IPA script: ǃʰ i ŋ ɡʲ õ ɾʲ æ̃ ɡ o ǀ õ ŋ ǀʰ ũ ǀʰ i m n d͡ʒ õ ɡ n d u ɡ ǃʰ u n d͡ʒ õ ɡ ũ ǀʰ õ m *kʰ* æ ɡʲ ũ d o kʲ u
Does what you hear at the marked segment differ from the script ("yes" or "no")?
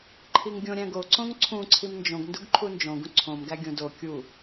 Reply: yes